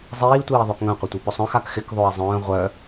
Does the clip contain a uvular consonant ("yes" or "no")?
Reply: yes